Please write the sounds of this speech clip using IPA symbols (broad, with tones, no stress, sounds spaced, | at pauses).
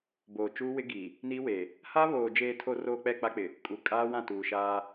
b oː˨ t͡ʃ uː˦ w ɪ˦ ɡ i˨ | n i˦ w e˨ | h a˦ β oː˨ d͡ʒ eː˨ tʰ o˨ r oː˨ k͡p ɛ˦˨ k͡p a˦ k͡p ɪ˨ | kʼ u˨ kʼ aː˦ w ã˦˨ t uː˨ ʃ aː˦